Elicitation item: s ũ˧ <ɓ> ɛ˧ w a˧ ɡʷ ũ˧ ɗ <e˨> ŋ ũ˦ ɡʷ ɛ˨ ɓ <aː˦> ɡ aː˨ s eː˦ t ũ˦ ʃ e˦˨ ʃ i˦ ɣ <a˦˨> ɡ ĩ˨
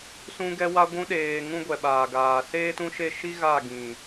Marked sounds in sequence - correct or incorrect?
incorrect, incorrect, incorrect, correct

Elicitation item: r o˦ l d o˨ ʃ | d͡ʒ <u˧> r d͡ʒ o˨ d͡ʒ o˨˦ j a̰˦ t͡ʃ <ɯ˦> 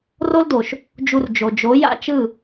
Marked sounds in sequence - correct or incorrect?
correct, incorrect

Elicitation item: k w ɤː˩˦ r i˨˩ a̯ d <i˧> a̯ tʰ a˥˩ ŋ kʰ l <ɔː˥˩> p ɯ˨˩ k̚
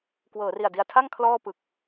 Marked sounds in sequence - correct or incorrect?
correct, correct

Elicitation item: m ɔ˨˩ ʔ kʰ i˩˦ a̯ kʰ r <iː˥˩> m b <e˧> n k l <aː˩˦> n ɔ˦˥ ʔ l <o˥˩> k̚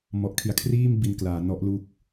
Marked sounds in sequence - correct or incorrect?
correct, incorrect, correct, incorrect

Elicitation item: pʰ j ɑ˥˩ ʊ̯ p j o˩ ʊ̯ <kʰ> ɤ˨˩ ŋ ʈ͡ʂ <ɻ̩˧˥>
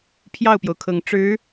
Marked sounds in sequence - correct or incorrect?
correct, correct

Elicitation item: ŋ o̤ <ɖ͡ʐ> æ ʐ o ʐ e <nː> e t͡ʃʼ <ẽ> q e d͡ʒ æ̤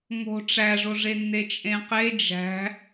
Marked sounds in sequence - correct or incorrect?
incorrect, correct, correct

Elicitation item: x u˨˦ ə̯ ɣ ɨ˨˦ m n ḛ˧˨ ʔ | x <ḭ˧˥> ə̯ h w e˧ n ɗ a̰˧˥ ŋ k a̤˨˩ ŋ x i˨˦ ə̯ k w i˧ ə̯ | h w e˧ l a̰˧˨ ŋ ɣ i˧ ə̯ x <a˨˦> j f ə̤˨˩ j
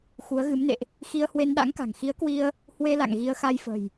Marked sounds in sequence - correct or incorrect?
incorrect, incorrect

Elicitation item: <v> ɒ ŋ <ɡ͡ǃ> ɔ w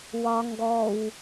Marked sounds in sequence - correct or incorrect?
incorrect, incorrect

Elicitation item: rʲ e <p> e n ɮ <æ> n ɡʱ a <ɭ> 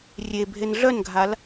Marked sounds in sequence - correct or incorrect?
incorrect, incorrect, incorrect

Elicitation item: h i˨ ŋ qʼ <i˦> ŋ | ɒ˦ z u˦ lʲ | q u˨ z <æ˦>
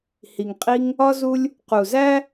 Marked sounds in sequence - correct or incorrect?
correct, correct

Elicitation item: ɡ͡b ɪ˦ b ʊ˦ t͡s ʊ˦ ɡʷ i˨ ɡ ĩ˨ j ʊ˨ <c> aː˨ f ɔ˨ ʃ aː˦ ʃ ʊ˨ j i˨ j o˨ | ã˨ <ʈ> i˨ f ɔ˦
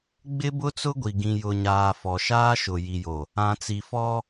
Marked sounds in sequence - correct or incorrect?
incorrect, incorrect

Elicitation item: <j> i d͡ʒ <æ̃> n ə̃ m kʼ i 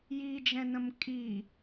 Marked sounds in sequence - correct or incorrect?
correct, incorrect

